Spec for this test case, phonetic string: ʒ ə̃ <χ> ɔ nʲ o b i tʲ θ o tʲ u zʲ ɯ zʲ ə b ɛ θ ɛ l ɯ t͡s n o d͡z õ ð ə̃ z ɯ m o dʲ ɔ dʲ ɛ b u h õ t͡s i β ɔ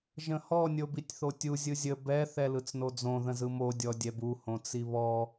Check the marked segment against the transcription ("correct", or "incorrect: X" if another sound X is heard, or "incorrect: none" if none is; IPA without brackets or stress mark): incorrect: h